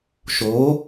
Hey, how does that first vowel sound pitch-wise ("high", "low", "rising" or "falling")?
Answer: rising